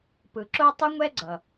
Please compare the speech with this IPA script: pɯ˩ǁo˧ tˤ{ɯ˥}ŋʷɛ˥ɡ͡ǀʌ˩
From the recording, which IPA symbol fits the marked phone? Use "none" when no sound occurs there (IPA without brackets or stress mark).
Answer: ɯ˥